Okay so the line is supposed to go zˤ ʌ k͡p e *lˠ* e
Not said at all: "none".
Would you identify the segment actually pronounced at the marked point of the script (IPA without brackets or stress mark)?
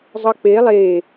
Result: lˠ